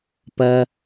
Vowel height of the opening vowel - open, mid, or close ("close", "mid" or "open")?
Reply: open